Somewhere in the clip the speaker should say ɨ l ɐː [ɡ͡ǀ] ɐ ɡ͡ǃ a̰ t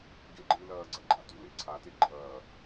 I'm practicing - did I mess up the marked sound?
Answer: no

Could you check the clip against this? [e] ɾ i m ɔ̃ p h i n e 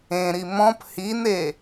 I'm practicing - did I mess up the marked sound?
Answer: yes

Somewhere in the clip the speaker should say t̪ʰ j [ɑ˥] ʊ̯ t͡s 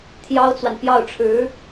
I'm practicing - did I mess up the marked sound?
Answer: no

